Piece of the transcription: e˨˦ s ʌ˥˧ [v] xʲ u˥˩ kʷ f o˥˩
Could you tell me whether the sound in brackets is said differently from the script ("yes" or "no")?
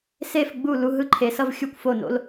no